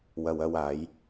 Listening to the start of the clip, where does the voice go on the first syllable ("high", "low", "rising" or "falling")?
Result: low